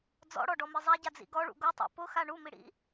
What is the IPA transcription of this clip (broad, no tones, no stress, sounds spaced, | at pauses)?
d͡z ɔ̰ ɽ ɔ ɖ ɔ m i zˤ a ɟ a d͡z ḭ ɡ ɔ ɭ ṵ ɡ o tˤ a̰ p ʊ x a ɳ u m i ɽ ḭ